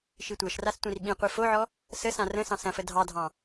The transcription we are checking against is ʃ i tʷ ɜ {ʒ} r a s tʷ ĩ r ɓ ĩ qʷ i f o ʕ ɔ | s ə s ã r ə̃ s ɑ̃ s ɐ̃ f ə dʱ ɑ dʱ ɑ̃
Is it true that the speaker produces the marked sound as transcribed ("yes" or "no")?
no